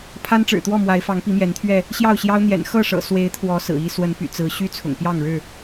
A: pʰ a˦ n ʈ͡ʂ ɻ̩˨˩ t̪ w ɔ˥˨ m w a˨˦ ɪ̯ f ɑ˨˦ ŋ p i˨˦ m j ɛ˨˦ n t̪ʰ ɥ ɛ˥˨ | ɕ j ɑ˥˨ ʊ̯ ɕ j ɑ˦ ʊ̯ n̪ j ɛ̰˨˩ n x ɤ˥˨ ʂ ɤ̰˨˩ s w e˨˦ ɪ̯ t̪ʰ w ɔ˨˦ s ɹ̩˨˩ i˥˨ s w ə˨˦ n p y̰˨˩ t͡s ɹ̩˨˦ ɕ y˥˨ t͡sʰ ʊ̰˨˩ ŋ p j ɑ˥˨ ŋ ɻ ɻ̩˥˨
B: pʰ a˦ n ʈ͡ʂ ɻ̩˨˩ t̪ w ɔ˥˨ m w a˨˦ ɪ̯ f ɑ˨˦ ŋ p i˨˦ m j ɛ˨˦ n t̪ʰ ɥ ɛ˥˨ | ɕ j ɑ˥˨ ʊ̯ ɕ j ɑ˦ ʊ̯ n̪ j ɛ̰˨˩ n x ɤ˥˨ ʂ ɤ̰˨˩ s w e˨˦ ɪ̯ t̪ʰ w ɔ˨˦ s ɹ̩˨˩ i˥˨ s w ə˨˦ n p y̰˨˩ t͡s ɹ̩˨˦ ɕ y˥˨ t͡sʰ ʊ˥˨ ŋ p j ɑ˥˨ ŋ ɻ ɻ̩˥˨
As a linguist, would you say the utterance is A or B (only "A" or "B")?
A